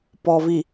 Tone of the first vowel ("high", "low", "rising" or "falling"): low